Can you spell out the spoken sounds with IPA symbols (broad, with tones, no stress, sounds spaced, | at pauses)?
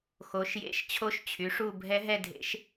x o˨˥ ʃ j ḛ˦˥ ʃ t͡ɕʰ o˥˧ ʃ t͡ɕʰ y˨˥ ʂ u˥˧ bʱ ɛ˦˥ ɦ ɛ˥˧ dʱ ḛ˦˥ ʃ